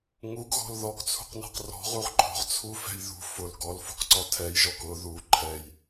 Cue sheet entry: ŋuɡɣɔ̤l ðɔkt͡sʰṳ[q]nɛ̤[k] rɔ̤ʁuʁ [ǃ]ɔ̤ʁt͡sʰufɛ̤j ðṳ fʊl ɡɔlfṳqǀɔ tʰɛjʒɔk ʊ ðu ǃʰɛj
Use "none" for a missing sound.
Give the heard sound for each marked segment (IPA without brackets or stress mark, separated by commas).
q, q, ǃ